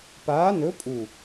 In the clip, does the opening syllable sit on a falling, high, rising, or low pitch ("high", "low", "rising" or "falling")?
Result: rising